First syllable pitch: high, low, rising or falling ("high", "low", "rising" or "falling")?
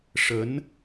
rising